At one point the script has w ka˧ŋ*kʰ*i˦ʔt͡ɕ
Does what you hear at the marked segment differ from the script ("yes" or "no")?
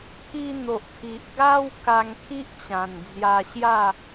no